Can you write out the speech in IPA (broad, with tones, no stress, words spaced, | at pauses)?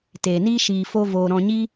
teː˨niː˦ ʃiː˧fo˦voː˧ ɾɔ̃˧ɲi˦